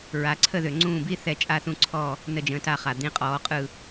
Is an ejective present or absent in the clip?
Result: present